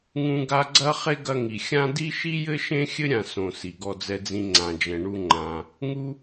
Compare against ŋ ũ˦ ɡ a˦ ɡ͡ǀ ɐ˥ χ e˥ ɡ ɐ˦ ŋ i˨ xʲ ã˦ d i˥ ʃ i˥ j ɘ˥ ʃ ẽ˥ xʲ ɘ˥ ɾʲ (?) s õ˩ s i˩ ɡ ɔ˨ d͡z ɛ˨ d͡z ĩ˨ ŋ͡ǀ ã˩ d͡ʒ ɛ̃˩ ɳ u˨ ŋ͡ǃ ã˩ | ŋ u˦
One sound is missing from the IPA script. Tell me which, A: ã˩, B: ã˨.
B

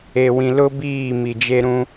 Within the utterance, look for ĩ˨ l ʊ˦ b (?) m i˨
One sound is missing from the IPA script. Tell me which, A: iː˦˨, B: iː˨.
A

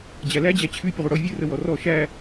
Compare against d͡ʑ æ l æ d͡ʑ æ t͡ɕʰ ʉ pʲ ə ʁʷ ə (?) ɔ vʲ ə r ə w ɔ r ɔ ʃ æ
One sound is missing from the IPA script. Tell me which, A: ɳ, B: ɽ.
B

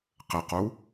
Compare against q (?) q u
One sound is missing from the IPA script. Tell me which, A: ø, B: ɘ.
B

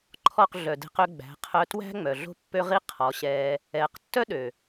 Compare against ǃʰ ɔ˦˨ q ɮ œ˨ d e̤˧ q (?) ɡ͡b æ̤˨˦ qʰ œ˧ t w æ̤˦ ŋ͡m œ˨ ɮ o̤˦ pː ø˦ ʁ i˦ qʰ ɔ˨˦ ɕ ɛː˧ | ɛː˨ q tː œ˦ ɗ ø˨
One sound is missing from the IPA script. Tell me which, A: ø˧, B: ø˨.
A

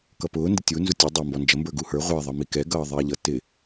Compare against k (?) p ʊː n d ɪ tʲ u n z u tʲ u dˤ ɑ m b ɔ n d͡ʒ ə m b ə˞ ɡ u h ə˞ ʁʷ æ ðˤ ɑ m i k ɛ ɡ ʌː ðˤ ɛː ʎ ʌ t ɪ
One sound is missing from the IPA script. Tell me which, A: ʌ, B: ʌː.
A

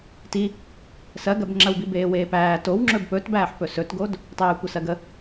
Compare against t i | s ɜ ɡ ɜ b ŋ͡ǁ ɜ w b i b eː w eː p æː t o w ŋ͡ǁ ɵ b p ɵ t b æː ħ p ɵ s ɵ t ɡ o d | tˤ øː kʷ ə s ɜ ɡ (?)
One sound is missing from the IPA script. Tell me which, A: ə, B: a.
A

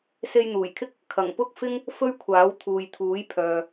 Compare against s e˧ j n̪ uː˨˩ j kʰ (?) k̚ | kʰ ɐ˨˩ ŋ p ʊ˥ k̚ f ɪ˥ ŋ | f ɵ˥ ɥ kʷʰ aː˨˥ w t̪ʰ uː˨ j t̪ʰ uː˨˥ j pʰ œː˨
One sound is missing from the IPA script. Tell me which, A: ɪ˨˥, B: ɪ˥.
B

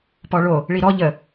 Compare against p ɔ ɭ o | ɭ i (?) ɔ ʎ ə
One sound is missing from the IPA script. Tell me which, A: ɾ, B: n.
A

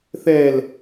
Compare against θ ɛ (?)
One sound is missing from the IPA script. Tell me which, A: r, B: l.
B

